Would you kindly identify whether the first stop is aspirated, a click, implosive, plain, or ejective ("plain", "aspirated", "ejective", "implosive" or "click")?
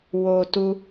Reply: plain